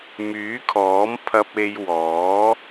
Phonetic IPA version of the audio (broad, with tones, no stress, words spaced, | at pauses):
myː˨˥kʰɔː˨˥m pʰɐ˧p̚e˧jwɔː˨˥